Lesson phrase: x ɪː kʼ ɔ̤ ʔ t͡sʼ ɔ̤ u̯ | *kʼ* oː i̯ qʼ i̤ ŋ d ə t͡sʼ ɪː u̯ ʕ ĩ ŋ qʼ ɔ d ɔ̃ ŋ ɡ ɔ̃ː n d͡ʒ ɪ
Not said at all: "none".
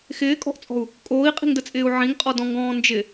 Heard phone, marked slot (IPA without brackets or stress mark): kʼ